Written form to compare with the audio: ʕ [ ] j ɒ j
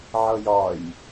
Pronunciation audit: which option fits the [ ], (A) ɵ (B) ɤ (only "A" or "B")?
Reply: B